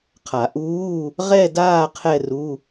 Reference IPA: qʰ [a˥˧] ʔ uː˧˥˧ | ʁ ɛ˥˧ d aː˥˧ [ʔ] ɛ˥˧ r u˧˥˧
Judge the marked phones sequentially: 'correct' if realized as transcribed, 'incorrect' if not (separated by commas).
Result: incorrect, incorrect